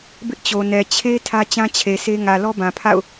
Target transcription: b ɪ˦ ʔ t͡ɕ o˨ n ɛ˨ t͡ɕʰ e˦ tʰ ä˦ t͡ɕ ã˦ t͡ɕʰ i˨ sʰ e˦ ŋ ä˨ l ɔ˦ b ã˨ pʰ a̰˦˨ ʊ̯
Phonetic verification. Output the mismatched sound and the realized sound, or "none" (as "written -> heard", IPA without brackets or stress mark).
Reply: i˨ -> e˨